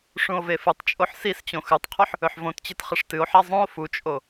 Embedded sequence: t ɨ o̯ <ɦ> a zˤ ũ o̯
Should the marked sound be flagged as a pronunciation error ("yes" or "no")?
yes